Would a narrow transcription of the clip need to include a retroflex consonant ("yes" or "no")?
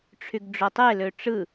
yes